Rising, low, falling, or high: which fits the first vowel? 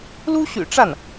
high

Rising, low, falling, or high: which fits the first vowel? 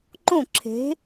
falling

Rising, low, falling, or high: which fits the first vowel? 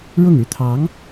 falling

